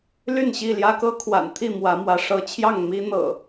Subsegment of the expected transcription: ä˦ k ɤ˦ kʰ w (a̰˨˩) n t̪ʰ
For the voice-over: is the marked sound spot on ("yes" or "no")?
yes